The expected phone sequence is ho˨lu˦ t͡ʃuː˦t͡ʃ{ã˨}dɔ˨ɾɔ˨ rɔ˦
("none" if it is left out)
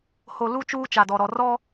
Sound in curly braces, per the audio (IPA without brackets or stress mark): a˨